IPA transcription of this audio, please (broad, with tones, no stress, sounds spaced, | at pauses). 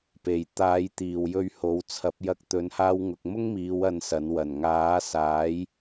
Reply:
p e˨ j t̪ aː˨˥ j t̪ iː˨˩ w j ɵ˧ ɥ h o˨˥ w t͡sʰ ɐ˨˥ p̚ j ɐ˨˥ k̚ t̪ ɵ˨˧ n h aː˧ w ŋ ʊ˨ k̚ m ʊ˥ ŋ m iː˨˧ w ɐ˧ n s ɐ˨˥ n w ɐ˨˩ n ŋ aː˨˥ s aː˨˥ j